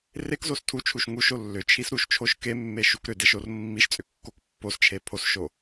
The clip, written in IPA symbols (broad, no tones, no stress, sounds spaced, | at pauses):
r e k z o s tʰ u t͡ʃʰ u ʃ ŋ u ʃ o lː ʏ t͡ʃʰ i s ɾ u ʃ t͡ʃʰ o ʃ k e mː e ʃ u k ɾ ʏ d e ʃ o r mː i ʃ t͡sʼ ʏ kː o k pː o s t͡ʃʰ e pʰ o s ʃ o